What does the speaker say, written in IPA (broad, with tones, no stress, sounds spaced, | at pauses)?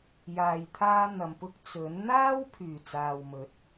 j aː˨ j t̪ʰ aː˧ n̪ ɐ˨ m p ʊ˧ k̚ t͡s ɵ˨˥ n n̪ aː˥ w pʰ yː˨˩ t͡s aː˨ w m ɵ˨˥ t̚